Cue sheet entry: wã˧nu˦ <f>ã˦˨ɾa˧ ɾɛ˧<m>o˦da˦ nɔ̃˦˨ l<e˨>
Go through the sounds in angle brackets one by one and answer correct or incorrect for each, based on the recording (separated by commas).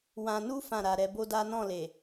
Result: correct, incorrect, correct